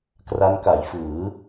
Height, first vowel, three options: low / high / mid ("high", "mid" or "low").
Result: low